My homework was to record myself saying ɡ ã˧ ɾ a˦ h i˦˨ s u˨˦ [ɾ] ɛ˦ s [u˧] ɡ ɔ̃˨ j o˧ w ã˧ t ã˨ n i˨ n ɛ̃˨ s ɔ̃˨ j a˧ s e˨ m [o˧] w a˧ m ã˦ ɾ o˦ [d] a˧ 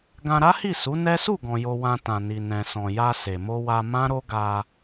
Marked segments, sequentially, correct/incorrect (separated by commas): incorrect, incorrect, correct, incorrect